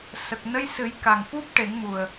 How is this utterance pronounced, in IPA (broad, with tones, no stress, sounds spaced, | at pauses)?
s ə˨˩ k̚ n ə˧ j s ɨ˨˩˦ j k a˨˩ ŋ f u˦˥ p̚ ʈ e˨˩˦ ŋ m u˨˩ ə̯